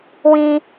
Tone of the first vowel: high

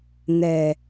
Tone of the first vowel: low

